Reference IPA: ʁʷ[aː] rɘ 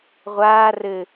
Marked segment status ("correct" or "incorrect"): correct